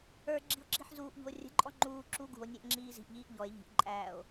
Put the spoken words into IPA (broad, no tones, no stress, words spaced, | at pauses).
ə˞ɡ͡ǁi̤o̯ǁi̤ħ zuːʔʎṳo̯ rʲə̤ǃʼɔ ŋ͡ǃuː ǁu ɡṳo̯nʲɛʔŋ͡ǁiː zi̤ʔʎiːʔ ʎɔe̯ ʎi̤ʔǃʼæːo̯